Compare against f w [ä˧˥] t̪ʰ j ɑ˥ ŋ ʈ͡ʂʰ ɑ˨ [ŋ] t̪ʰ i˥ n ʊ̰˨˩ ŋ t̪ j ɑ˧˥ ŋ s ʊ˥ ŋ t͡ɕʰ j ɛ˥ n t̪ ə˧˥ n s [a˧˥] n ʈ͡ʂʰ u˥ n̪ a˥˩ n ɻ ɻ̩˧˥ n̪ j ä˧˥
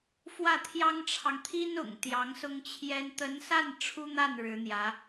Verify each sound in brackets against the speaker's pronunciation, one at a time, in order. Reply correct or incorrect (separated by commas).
incorrect, correct, incorrect